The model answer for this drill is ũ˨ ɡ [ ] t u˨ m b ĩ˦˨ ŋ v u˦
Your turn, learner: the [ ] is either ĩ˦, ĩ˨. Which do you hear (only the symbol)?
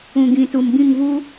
ĩ˨